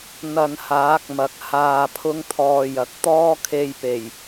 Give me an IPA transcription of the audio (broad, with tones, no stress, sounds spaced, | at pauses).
n̪ ɐ˧ n h aː˨˥ k̚ m ɐ˨ k̚ h aː˧ pʰ ʊ˥ ŋ t̪ʰ ɔː˧ j ɐ˨ k̚ t̪ ɔː˥ kʰ e˧ j p e˨˩ j